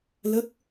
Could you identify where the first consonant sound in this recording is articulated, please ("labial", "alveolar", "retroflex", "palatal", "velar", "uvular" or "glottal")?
alveolar